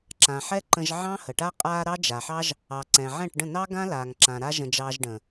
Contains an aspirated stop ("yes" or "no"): no